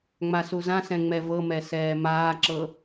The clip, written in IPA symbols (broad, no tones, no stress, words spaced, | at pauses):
ŋ͡masuzãsɛ̃ ŋ͡mɛvɤmɛ sɛːmaːǁɤ